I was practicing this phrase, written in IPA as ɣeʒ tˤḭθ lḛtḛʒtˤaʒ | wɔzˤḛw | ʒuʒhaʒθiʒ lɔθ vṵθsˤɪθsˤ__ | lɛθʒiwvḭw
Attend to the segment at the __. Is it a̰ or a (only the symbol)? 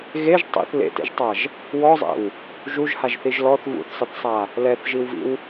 a